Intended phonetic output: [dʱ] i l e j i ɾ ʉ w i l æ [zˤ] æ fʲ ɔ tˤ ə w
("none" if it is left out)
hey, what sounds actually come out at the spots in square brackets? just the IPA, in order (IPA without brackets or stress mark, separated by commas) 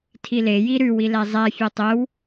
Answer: tʰ, zˤ